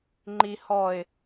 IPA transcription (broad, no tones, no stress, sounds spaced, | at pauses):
ŋ͡ǃ i h ɔ ɪ̯